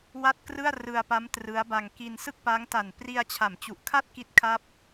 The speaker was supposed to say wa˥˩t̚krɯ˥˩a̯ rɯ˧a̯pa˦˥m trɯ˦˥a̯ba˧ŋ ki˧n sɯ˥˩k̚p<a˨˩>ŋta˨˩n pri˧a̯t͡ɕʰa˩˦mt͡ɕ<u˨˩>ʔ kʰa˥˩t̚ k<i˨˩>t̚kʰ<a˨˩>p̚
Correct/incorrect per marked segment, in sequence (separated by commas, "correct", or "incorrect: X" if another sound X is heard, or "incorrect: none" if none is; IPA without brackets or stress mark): incorrect: a˦˥, correct, incorrect: i˥˩, incorrect: a˥˩